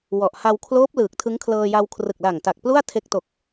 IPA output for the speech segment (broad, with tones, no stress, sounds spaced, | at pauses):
w ɔ˨˩ ʔ h a˧ w kʰ l oː˦˥ p̚ l ɯː˨˩ k̚ tʰ ɯ˦˥ ŋ kʰ l ɤː˧ j a˧ w kʰ r ɯ˨˩ k̚ l a˨˩ ŋ t a˨˩ k̚ p l u˥˩ a̯ tʰ e˦˥ k̚ t o˨˩ k̚